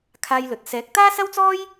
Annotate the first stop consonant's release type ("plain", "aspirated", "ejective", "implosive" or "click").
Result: aspirated